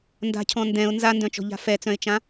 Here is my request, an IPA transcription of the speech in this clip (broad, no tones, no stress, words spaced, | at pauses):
nda̤cʰɔ̃ ndɛ̃ʊ̯ nzandœ̃t͡ʃɔ̤ʎa̤ fɛt͡sœ̃ɪ̯t͡ʃã